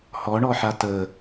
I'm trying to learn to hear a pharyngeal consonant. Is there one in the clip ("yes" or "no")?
yes